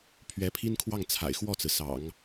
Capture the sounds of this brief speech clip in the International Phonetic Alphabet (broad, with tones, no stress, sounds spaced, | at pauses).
pʰ ɥ ɛ˧˥ pʰ i˥ n kʰ w ɑ˥˩ ŋ t͡sʰ a̰˨˩ ɪ̯ x w ɔ˥˩ t͡s ɹ̩˩ s ɑ̰˨˩˦ ŋ